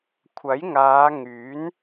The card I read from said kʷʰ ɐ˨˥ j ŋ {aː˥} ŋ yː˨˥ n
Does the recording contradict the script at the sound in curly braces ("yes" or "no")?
yes